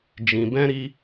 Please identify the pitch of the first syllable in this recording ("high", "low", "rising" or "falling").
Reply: low